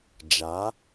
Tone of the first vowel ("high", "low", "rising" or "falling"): rising